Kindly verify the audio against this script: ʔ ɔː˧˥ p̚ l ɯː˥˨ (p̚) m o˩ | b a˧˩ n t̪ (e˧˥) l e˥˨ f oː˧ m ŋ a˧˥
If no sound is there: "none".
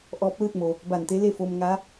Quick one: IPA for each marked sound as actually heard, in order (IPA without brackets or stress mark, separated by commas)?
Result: t̚, e˧˥